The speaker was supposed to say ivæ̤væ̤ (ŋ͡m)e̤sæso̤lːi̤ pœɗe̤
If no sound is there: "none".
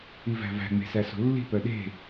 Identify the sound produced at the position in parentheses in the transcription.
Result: ŋ͡m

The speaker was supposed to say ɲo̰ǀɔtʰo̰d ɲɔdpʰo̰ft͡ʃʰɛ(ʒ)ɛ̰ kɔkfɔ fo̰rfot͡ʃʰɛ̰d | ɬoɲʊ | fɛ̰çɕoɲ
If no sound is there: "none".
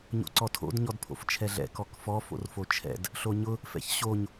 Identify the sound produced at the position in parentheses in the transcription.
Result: ɮ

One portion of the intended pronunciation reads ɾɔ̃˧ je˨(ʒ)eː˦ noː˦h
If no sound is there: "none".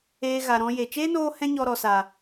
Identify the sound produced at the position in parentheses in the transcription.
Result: t͡ʃ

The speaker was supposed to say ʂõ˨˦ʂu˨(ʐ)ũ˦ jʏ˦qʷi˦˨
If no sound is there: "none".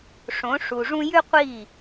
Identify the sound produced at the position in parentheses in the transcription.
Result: ʐ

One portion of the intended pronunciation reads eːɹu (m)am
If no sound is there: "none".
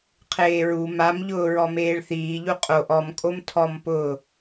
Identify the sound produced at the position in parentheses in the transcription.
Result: m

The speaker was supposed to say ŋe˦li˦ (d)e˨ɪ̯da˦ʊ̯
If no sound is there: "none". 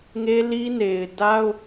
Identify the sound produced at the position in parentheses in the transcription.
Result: n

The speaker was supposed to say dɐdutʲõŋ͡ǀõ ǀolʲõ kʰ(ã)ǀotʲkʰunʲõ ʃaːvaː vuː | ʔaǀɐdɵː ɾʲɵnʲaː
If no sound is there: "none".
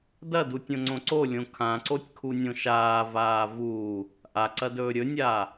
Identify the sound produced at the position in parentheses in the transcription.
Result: ã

